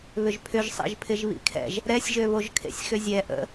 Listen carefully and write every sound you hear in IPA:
β ʏ ʒ pʰ ʏ ʒ sˤ ḛ ʒ pʰ ɪ ʒ β ḭ kʰ ɛ̰ ʒ | ɾ ɛ sʲ ʒ ø β o ʒ kʰ ḛ sʲ x ʏ zʲ ɛ ʔ ə̰

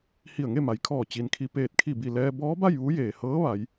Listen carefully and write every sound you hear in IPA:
h i˧˩ ə̯ ŋ e˥˨ m a˩ j kʰ ɔː˧˩ t͡ɕ i˩ n kʰ i˧˩ p eː˧˩ t̚ kʰ i˧˩ b i˧˩ l ɛː˧ b ɔː˧˥ b a˥˨ j ʋ u˧˥ j eː˩ h ɤː˧˥ ʋ a˩˧ j

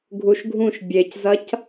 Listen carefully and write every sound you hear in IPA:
ɡʱ u ʃ ɡʱ ũ ʃ bʲ e c z ɐ c

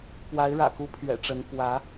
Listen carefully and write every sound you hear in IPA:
p w a˧˥ ɪ̯ ɻ ä̰˨˩ k u˧˥ pʰ ɥ ɛ̰˨˩ ʈ͡ʂ ə˧˥ n p w ä˧˥

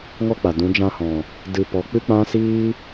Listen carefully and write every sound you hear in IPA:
ŋ ɔ˦ k͡p a˨ d ũ˨˦ d͡ʒ ã˧ h ɔ̃˨ | d ɨ˧ p ɔ˨˦ k͡p ɨ˦ k͡p ã˦ s iː˦

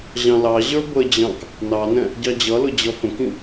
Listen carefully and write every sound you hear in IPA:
ʑ ɑ̃ l ɑ ʑ ə˞ b ə d͡ʑ ɑ̃ k | n ɑ n ɛ̃ | ɟ ɑ d͡ʑ ʌ l ʊ d͡ʑ ʌ f ə̃ k ĩ

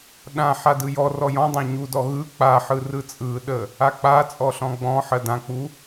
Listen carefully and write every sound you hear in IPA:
ɗ ã ħ a d ɯ j ɔ r ɔ j ɔ̃ dˤ ã ɲ u d ɔ ɣ ɯ k͡p a ħ ɯ r ɯ t͡sʼ ɯ ɗ ə | a k͡p a t͡sʼ ɔ ɬ ɔ̃ ɡ͡b ɔ̃ ħ ɜ d ã k͡p u

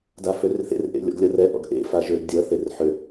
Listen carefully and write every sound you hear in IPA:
d a f ø r θ ḛ r ʔ ḛ lʲ ɔ̰ ɡ lʲ ʌ r ɛ ʔ ɔ̰ ɡ ʔ ḛ f a ʒ ø ɡ dʲ ʌ θ e r ħ ø

